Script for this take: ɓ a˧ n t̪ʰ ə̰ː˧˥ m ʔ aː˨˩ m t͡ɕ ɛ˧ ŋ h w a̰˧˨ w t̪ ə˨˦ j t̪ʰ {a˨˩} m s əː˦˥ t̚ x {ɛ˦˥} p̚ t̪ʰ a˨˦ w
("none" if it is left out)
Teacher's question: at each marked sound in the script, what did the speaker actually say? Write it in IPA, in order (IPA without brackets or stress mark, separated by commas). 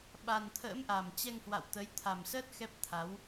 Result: a˨˩, ɛ˦˥